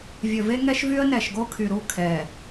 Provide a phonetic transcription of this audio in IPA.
vʲɵ˨ve˦ŋɛ˦ʃvy˦ə̯ nɛ˨ʃɡo˦kʰy˨ɾu˦˨ kʰɛː˨

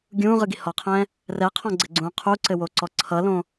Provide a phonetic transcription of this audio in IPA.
ɡʲũːʁɯɡi hɔqʰɛ̃ː | rɛqʰɔ̃ɡ͡ǀɘɡ͡ǀũː qʰuǀɘwoǀɔ ǀʰʌlõ

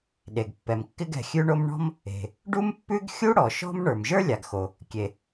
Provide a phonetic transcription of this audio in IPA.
ɗe˩ɡpːɛ˩m kːɪ˥ɡɛ̤˩xʲʉ˥ɳo˥m ɳɔ̤˥m | e̤˩ | ɖu˥mpːʉ˥ɡ xʲu˥ ɽɔ˩ʃɔ̤˥m ɳə˞˩mʒə˞˥lʲa˩ɡxo˩ | kʲe˩

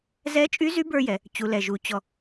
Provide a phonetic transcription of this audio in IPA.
zɛ˧˥t͡ʃʼy˧˥zy˧˥ bə˞˥jɛ˩˧ | t͡ɕu˩˧lɛ˩ʒu˩˧ t͡ɕɔ˧

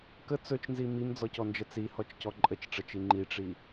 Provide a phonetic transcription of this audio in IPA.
kə t͡sɵt͡ʃnzi mimd͡zɔcɔnd͡ʒə t͡sihɔt͡ʃcɔ ǃʼət͡ʃʈ͡ʂət͡ʃi ŋ͡ǃiʈ͡ʂi

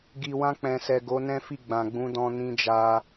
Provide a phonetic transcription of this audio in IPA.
ɡi˨wã˧k͡pɛ̃˨sɛ˨ ɡo˨˦nɛ̃˦fi˦˨ ɡ͡bã˨ɡ͡bũ˨˦dɔ̃˧ nĩ˧d͡ʒa˧

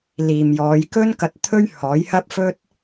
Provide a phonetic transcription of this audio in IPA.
liː˨mjɔː˨˧jkɵ˥nkɐ˧t̚ t̪ʰɵ˥ɥhɔː˨˥jhɐ˥p̚fɵ˥t̚

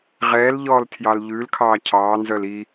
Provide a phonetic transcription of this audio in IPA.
ʁɛːlʎɔːltʰjɑl ʎʉlkʰɑː cʰɑːnzœl i

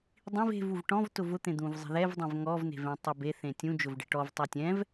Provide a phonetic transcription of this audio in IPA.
dˤĩv e̤vuv ʈɔ̃v tʊvʊt̪ẽ d̪ũvzˤe̤ðɛvdˤɛ̃v ŋɔvne̤vẽ tˤʊbe θẽtʲũ d͡ʒʊvɖe̤ʈɔv tˤutʲɛ̃v

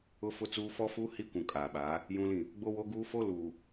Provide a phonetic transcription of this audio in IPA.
ʊ˦fʊ˦t͡suː˦ fɔ˦fuː˦ hi˦kʷũ˨ kʼaː˨ɓaː˨˦ | jũ˦lĩ˦˨ | ɡ͡bo˦wo˦ ɡuː˦fo˦ luː˨

